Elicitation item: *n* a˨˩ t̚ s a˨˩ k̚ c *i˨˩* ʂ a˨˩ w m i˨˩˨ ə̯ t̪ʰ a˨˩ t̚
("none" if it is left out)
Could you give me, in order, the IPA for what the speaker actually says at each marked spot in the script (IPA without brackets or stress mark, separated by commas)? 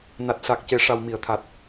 n, e˨˩